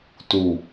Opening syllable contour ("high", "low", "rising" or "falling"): low